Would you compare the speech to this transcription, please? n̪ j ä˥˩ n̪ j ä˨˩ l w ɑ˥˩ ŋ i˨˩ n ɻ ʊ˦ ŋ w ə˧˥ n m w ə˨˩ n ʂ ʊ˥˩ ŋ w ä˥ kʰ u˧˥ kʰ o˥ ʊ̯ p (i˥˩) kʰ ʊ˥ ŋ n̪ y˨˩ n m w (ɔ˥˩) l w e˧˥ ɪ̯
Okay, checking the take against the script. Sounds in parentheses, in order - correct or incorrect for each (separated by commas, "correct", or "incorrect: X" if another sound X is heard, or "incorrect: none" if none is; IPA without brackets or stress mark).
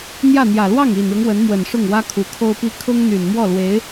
incorrect: i˥, correct